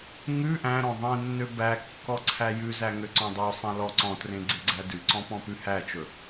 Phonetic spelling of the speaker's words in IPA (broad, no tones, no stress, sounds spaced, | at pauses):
ŋ ʉ ʔ æ̃ ɾ ɔ̃ ðˤ ẽ nː ø b æ kː ɔ ǀʰ æ j ʉ z æ ŋ ø ǀ ɔ̃ dˤ ø sˤ æ̃ l ɔ ǀ ɔ̃ t r ẽ ɡ͡ǀ e ɡ͡ǀ æ d ʉ ǀ ɔ̃ p ɔ̃ p ʉ h æ t͡ʃ ɵ